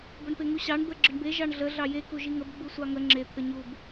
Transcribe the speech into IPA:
b ə ɳ p e ŋ u ɕ ɑ ɳ d̪ ə ɡ͡ǁ ə ɳ b e ʒ ɑ ɳ ɮ ə ɮ ɑ j e k u ʒ i ŋ ə b ɡ͡b u sʷ ɑ ŋ ə ŋ͡ǁ e t̪ʰ ə ɲ u b

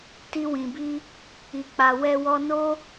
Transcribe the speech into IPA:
t i˧ w ĩ˨ b i˧ | i˨ k͡p a˨ w ɛ˧ w ɔ˧ n o˦

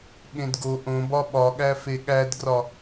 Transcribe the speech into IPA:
ɠ ẽ d ɡ o ʔ õ b ɒ ɓ ɒ ɠ æ f e ɠ æ d ɡ r ɒ

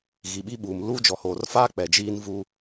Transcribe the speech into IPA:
ɣ i˨ ɓ i˦ ɓ uː˨ m l uː˦ d͡ʒ ɔ˨ h oː˨ r f aː˦ k͡p ɛ˨ d͡ʒ iː˦ n v uː˦

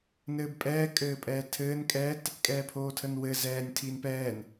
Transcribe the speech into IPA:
n ɘː b pʼ ɛː kʼ ɘː pʼ ɛː tʰ ɘː n kʼ ɛː t | kʼ ɛː pʰ oː tʰ ə n w ɘ z ɛː nʲ tʰ iː n p ɛː n

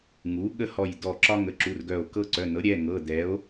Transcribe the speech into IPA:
ŋ u˩˥ ɠ ə˦ h ɔ˧˩ j d ɔ˧˩ ǁ ɒ˦ ŋ ə˩˧˩ ǁ u˩˧˩ r ɡ œ˧˩ o̯ k ɤ˦ ǀ œ˩˧˩ n ɤ˩˥ ɾʲ ɛ˩˧˩ ŋ ɤ˩˧˩ d ɛ˩˥ o̯

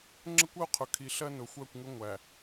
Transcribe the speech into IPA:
ŋ͡ǁ ə˦ kʷ ʌ˦ o̯ qʰ ʊ˨ kʰ i˨ ɬ ɜ˦ n ʊ˨ xʷ ɜ˦˨ kʷ ŋ ʊ˦ ŋʷ æ˨

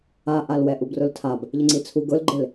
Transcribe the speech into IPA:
a ʔ a l w ɛ ʔ u b r ʊ l tʰ a b | ʎ ɪ ŋ͡ǀ i t͡sʰ u ɡ ʊ l ɡ͡ǃ ɪ l

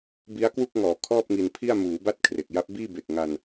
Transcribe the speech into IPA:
b i˦˥ a̯ k w u˥˩ k̚ ŋ ɔː˩˦ kʰ ɔː˥˩ p̚ ŋ i˧ n pʰ i˥˩ a̯ m uː˩˦ b a˦˥ t̚ kʰ r e˨˩ k̚ j a˦˥ p̚ b iː˥˩ b e˨˩ k̚ ŋ a˧ n

